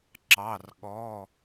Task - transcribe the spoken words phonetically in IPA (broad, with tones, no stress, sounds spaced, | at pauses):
ǁ ɑ˩˧˩ r ɠ ɔ˩˧˩